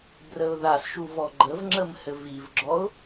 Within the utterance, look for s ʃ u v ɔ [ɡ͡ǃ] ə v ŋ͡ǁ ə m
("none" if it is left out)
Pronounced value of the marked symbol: ɡ͡ǃ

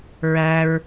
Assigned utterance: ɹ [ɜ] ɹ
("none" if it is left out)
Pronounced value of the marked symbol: æ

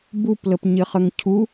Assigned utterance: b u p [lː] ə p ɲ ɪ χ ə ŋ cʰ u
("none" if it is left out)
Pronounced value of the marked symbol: l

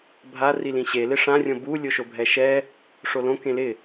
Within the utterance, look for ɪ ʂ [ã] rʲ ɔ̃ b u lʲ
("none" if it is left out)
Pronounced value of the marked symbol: ã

